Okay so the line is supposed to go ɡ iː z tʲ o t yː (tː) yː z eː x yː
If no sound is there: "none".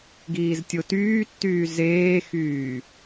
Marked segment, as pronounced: tː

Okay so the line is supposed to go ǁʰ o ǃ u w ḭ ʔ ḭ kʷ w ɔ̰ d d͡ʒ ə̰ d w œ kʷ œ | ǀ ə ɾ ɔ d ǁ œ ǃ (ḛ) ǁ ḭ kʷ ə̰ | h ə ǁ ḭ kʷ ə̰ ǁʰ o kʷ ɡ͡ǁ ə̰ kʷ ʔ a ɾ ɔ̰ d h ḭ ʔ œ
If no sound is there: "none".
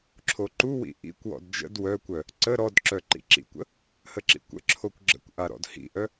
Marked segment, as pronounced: ḭ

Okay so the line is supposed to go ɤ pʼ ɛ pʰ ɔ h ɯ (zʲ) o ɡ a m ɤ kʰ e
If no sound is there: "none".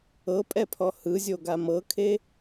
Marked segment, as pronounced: zʲ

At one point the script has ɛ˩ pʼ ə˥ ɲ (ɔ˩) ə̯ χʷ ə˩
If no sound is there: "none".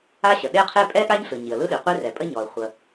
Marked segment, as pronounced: ɔ˩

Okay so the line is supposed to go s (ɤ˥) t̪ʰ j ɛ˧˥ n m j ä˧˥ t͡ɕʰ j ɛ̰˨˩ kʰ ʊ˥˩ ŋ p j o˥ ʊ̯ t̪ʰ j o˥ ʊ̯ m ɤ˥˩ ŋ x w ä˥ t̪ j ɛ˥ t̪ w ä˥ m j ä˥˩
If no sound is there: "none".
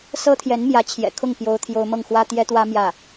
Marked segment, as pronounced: ɤ˥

